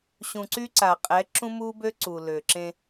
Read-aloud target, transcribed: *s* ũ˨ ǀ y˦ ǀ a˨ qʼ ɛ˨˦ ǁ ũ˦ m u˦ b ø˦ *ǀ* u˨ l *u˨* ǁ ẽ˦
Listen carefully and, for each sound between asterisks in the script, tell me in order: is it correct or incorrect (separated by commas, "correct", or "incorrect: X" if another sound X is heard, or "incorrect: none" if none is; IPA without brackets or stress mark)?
incorrect: ɕ, correct, incorrect: ø˨